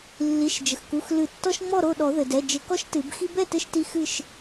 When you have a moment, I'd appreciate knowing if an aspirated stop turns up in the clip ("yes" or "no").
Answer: no